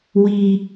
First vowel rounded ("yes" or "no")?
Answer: no